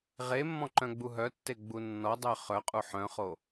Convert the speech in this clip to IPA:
ʁ e mː ɔ̃ ǃ œ̃ ɡ͡b u ɦ œ tː e ɡ͡b u nː ɔ dˤ œ χ œ qʼ u ħ œ̃ χ o

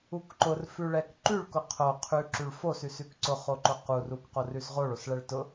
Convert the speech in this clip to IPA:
u k ǃ ʊ r f ʉ ɭ ɛ k ǃ ʉ ɭ k ʊ qʰ o qʰ ʉ ǁ ʉ ɭ f o s ʉ s ʉ k ǀ ʊ χ o ǃ ʊ q u r u k q o r ʉ s ʁ o ɭ o s ɭ ɛ ɭ t ʊ

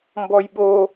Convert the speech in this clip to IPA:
m b ɔ j ɓ o

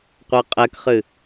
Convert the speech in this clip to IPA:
qʷ ɜ qʼ ɛ k χ ɨ

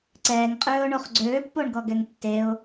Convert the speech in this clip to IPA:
ǀ ɛː ŋ qʼ øː ʊ̯ ɳ o χ ɡ͡ǀ øː pː o ɳ ɡ ɔ ɡ ɛ ŋ tː e ʊ̯

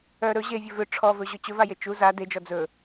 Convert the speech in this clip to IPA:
œ ɾ ɵ ʑ e vʲ ɵ v ʏ ʈ͡ʂʰ ɔ v ɵ ʑ ɵ t͡ɕ ɵ v a j e t͡ʃ u z a d e d͡ʒ ɔ d͡z ɵ

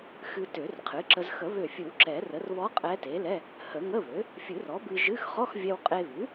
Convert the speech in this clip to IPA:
x ɨ˧ t ø˨˩˦ r qʰ ɨ˩˥ ǁ ə˧ z x ə˨˩˦ β ø˧˩ fʲ ɨ˨˩˦ w ǁ ɛ˨˩˦ r ə˩˥ r β ɔ˧˥ qʼ ɛ˧˥ t e˩˥ l ɛ˧˥˧ | h ə˨˩˦ ŋ ə˧˥˧ β ø˩˥ | fʲ ɨ˨˩˦ r ɔ˩˥ b ɨ˧ ʒ ɨ˧˥˧ x χ ɔ˧˥˧ x vʲ ɛ˧ w qʼ e˧ β ʉ˩˥

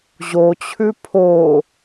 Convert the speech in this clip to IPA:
ʑ o t͡ɕʰ ʉ pʰ o

